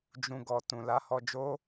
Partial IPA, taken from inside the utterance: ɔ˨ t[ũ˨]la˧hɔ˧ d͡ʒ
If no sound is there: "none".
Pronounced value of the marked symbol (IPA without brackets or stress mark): ũ˨